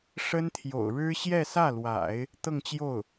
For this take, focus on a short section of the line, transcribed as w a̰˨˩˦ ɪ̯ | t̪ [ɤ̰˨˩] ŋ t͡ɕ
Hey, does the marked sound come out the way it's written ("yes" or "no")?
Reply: no